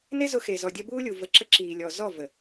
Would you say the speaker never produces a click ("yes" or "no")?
no